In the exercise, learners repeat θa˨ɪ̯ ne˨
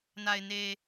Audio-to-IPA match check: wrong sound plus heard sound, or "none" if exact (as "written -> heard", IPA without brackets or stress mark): θ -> n